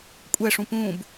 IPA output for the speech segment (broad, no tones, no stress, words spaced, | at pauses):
kʷʼɛʂũ pũb